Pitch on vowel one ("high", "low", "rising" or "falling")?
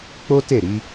high